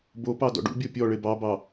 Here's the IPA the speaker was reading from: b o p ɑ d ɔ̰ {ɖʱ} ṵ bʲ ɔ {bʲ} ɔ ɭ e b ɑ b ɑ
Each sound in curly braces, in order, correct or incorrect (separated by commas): incorrect, incorrect